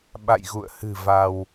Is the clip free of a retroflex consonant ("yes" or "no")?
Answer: yes